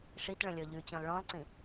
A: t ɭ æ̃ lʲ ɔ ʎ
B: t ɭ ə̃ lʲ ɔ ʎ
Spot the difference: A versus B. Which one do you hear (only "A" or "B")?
B